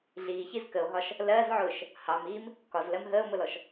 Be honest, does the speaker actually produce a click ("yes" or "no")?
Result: no